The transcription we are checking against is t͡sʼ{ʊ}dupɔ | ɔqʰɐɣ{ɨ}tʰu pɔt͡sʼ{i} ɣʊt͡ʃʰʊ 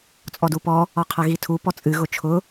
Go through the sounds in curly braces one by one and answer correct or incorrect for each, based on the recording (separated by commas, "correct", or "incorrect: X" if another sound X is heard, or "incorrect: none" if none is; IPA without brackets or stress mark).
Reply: incorrect: ɔ, incorrect: i, incorrect: ɨ